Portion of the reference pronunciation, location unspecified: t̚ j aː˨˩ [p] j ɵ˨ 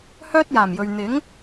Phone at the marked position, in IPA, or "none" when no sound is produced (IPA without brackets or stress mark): m